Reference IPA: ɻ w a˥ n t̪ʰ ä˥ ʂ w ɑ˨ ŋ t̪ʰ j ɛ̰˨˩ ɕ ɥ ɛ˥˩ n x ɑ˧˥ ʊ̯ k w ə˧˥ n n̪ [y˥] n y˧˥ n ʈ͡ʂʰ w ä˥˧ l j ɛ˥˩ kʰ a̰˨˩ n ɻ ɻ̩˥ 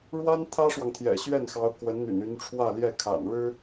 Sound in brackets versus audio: incorrect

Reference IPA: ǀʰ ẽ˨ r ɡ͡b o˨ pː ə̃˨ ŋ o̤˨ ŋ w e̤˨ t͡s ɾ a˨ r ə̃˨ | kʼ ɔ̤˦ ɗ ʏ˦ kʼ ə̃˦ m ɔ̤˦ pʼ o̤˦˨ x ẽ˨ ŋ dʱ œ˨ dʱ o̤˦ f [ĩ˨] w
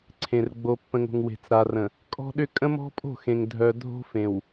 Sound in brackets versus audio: incorrect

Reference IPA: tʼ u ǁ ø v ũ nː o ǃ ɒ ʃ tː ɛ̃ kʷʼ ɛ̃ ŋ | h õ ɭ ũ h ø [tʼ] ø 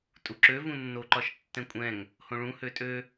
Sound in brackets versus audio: correct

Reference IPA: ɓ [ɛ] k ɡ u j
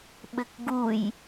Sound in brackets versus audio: incorrect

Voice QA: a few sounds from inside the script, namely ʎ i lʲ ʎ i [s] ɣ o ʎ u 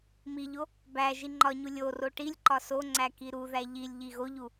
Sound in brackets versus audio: incorrect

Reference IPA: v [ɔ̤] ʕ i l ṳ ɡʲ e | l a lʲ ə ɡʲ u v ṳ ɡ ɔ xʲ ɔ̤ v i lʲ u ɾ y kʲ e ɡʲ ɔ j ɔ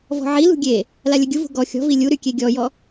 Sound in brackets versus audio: correct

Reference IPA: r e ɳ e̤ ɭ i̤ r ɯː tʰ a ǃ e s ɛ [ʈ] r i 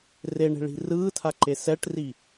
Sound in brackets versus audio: correct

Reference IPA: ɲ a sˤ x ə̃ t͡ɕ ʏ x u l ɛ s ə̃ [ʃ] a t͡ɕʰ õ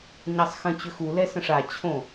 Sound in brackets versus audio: incorrect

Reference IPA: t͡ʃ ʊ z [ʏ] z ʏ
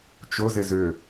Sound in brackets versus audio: incorrect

